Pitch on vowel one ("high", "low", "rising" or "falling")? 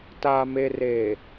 low